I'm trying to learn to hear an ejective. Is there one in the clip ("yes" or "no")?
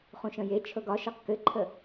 no